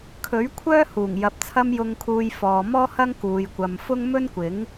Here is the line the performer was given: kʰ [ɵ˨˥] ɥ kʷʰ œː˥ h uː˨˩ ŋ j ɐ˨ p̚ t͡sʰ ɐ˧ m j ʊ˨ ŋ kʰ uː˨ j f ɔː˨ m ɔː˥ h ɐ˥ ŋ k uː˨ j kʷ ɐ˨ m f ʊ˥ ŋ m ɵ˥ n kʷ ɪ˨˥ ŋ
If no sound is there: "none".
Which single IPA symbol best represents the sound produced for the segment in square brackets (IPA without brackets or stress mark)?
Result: ɵ˨˥